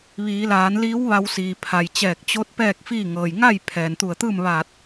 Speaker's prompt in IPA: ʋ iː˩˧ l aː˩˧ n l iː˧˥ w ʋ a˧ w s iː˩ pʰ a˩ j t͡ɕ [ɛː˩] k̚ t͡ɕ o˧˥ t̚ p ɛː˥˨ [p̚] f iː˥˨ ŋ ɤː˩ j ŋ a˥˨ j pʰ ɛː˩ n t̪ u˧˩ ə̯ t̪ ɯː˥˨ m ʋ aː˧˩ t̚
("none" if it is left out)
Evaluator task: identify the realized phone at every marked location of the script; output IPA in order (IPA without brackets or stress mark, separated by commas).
ɛː˧˩, k̚